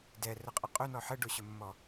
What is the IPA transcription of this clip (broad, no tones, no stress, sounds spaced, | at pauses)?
d ɛ r ə qʼ ə qʼ ɵ n ɔ ħ ə ɖ o ɕ ɵ mː ɔ